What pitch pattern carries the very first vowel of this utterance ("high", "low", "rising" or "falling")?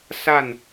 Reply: falling